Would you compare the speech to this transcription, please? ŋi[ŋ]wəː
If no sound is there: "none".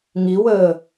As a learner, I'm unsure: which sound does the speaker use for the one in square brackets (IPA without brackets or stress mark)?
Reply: none